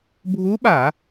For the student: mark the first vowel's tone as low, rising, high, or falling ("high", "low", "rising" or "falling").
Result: rising